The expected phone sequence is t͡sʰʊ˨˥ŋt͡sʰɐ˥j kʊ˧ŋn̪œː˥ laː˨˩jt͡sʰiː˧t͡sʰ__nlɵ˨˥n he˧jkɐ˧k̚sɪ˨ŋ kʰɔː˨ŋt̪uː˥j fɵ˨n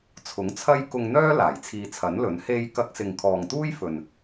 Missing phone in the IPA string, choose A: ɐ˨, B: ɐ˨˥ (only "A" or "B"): B